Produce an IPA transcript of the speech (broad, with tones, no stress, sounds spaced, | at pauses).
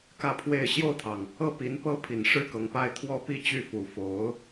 k ä˥˧ pʰ w e˥˧ ɪ̯ ɕ j o˥˩ ʊ̯ t̪ʰ ɑ˩ ŋ | ɤ˥˩ p i˧˥ n p ɤ˥ pʰ i˨˩ n ʂ ɻ̩˥ k ɤ˧˥ ŋ p a˥ ɪ̯ t̪ʰ w ɔ˥ p i˥ t͡ɕ y˥˩ f u˨˩ f o˧˥ ʊ̯